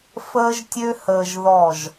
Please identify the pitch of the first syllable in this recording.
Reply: high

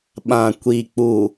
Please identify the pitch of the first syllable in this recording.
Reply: low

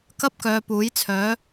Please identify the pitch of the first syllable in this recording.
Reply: high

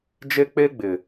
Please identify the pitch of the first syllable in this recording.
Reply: high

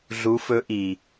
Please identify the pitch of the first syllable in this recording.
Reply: rising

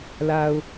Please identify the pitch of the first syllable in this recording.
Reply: low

